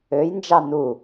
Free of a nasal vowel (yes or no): yes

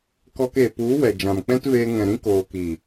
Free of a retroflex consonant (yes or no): yes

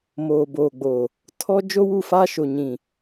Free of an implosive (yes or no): yes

